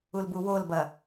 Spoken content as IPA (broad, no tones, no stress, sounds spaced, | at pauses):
u l b u w o l b ɐ